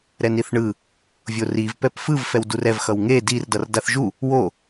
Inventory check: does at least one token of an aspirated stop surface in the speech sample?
no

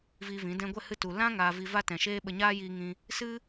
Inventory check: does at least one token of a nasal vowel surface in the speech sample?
yes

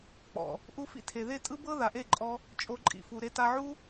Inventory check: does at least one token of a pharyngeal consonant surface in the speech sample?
yes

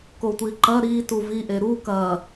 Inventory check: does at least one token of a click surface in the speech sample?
yes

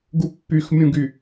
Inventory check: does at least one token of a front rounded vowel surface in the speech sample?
yes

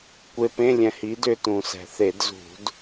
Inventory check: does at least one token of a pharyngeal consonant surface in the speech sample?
no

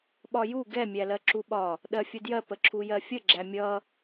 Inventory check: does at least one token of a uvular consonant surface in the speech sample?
no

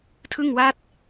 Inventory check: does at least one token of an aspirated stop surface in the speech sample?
yes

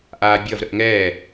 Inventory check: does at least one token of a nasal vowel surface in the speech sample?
no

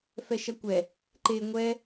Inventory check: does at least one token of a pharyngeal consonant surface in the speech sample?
no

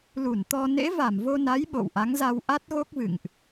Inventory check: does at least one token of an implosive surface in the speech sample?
yes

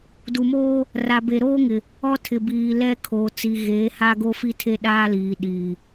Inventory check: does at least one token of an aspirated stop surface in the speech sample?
yes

